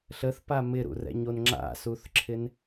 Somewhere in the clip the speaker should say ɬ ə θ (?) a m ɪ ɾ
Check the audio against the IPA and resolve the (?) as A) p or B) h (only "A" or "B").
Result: A